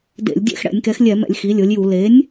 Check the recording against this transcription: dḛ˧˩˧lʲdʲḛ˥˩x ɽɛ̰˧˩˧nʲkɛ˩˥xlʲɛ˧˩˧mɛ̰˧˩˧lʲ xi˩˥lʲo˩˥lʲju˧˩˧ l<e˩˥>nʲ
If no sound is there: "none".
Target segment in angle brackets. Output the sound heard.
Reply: e˩˥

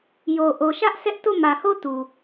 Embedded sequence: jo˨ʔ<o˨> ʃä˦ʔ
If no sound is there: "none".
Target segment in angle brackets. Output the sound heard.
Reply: o˨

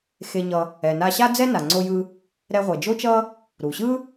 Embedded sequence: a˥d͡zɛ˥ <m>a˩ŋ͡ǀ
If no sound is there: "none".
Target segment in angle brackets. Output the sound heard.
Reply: n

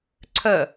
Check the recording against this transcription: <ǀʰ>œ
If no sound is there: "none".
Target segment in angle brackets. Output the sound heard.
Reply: ǀʰ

